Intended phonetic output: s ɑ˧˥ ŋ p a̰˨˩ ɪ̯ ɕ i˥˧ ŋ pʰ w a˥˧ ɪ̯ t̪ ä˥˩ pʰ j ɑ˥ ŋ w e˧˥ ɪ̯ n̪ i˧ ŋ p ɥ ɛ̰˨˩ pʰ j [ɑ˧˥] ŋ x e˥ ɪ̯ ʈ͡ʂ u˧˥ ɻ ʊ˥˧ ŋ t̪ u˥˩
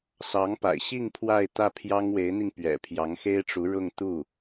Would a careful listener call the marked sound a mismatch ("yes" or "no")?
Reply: no